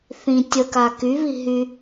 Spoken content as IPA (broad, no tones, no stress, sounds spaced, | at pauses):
θ ĩ tʲ ə k a k y β i ɦ y